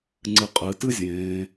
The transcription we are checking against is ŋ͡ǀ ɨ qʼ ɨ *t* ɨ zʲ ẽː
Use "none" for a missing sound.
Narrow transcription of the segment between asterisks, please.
t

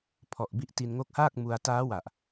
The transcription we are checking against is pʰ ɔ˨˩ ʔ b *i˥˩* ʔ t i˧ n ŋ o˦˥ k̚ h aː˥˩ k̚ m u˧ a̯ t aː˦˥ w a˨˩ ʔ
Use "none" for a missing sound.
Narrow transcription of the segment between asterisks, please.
i˦˥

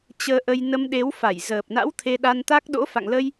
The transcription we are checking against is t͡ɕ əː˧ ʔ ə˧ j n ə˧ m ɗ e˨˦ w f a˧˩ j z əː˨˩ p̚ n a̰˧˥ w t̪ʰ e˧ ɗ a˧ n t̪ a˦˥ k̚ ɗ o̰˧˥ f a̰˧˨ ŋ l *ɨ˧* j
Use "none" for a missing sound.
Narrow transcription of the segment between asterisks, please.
ə˧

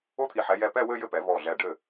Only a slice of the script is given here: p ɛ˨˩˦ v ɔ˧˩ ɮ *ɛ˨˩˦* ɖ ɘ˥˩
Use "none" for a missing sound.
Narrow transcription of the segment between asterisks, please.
ɛ˧˩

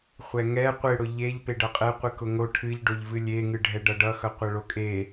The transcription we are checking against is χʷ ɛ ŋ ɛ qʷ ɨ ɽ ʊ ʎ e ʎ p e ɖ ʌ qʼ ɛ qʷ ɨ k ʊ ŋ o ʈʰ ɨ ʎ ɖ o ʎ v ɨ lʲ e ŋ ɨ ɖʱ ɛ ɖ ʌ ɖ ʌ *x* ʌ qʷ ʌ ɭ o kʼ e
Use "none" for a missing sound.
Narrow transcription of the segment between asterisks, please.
x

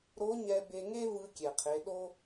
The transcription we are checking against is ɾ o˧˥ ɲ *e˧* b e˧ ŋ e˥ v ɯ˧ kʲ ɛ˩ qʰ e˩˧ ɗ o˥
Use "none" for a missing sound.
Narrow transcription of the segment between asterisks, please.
ɛ˧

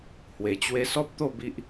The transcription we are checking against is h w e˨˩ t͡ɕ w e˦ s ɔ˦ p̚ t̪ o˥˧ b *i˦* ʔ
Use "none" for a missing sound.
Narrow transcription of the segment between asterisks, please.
i˦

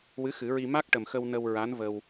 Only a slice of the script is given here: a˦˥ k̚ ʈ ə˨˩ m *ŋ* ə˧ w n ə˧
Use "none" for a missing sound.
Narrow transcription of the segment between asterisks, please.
x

